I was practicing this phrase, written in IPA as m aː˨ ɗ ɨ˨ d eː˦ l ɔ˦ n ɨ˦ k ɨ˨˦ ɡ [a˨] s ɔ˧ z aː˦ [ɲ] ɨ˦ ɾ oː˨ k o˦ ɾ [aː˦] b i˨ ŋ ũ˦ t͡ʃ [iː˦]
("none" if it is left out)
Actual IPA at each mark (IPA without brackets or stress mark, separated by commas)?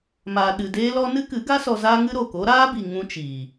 a˦, ŋ, aː˦, iː˨